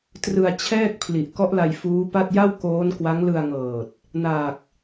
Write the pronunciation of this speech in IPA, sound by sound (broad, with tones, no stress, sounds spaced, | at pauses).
t r ɯ˧ a̯ t͡ɕʰ ɛː˥˩ k̚ pʰ l i˨˩ ʔ k ɔ˦˥ ʔ l a˧ j f uː˦˥ p a˥˩ t̚ j a˥˩ w k oː˦˥ n k w a˦˥ ŋ l ɯ˧ a̯ ŋ ɤː˨˩ t̚ | n aː˨˩ k̚